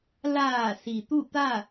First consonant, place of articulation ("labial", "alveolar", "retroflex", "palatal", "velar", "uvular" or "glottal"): alveolar